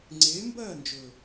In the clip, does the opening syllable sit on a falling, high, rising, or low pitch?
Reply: rising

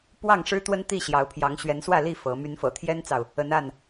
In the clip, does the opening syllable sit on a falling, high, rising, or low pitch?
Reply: falling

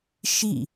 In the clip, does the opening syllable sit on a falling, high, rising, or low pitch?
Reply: falling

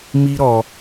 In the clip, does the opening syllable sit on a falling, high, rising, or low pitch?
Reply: high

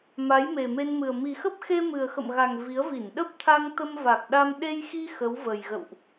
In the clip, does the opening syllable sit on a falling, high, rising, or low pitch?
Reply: rising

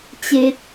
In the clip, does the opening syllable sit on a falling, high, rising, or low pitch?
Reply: low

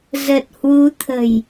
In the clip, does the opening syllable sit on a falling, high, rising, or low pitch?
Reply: low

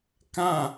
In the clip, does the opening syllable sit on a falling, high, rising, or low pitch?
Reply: falling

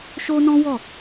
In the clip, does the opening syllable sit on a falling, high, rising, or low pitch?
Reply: high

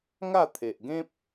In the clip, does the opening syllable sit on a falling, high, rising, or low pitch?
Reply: falling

